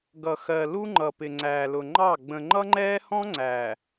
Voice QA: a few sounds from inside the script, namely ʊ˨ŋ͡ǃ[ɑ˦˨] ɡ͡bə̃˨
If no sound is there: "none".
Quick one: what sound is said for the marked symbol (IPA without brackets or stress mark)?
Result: ɑ˦˨